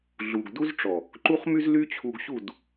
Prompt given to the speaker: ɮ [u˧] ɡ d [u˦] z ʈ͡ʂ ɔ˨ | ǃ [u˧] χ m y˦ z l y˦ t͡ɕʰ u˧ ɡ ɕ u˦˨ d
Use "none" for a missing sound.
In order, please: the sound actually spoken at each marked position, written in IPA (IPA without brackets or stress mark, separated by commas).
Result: u˧, u˦, u˦